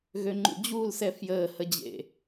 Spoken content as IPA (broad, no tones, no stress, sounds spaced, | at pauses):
ɣ ø ŋ͡ǃ ṵ d͡ʑ uː l s ɛ f j əː h ə d͡ʑ ḛ